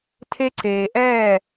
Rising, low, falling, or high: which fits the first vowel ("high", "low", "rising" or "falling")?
high